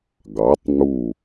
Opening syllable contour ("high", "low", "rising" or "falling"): rising